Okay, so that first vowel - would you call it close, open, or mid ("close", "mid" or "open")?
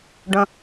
mid